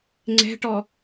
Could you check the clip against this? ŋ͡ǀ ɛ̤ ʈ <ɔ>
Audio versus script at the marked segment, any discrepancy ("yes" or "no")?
no